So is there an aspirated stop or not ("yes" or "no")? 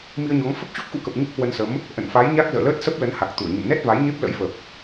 no